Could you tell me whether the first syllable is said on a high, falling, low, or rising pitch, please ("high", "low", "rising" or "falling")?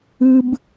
high